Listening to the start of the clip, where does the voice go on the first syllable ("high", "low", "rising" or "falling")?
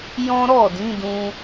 high